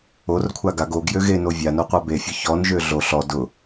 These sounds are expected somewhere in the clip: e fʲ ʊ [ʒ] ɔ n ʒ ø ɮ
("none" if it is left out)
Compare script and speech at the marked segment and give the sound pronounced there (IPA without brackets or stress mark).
ç